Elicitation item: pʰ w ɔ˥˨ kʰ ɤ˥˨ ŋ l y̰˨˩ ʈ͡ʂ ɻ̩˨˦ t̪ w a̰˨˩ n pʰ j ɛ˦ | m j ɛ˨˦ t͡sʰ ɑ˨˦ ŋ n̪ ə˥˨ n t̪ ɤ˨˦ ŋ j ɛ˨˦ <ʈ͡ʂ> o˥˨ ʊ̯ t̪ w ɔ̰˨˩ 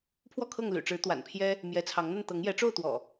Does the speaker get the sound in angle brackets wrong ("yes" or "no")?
no